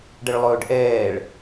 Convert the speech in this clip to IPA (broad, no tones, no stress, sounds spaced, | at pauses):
ɖ ə ɭ lˠ ɵː ɖ ʔ ɛː ɭ